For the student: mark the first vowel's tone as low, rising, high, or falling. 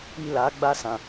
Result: high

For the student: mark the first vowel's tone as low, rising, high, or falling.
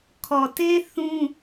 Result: low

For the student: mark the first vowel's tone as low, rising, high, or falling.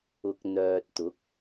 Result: low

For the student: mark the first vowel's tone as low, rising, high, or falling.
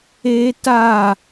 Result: high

